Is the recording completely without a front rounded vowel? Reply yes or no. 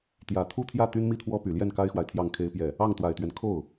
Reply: no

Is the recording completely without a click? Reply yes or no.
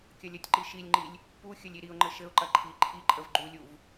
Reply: no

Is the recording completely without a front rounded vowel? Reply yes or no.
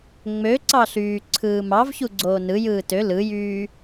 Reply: no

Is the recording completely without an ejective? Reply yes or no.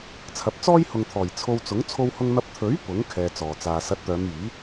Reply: yes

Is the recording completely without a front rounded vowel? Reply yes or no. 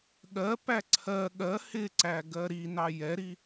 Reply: yes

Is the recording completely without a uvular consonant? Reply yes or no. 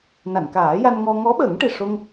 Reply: yes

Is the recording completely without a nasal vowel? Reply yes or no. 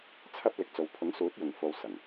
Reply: yes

